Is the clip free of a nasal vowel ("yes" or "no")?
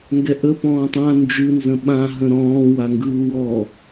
no